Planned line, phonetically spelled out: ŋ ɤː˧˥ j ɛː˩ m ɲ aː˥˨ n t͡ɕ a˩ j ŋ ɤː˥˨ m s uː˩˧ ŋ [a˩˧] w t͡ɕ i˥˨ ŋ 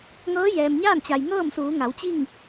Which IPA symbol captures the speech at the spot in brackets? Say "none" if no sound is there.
a˩˧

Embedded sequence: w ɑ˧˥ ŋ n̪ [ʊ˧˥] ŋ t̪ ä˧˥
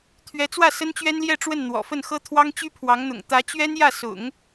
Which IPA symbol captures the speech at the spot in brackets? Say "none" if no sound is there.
ʊ̰˨˩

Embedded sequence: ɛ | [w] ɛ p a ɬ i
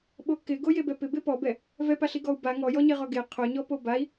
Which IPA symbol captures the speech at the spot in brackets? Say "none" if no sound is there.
v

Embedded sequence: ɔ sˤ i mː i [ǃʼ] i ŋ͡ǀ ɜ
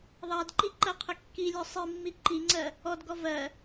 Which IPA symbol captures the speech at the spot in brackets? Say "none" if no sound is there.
ǃ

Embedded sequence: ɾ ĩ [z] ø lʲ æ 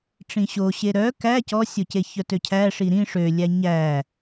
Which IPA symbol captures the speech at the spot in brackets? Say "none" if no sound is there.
ʂ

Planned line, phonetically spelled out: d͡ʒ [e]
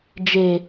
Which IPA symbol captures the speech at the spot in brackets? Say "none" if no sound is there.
e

